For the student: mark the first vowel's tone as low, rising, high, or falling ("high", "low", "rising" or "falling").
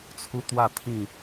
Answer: high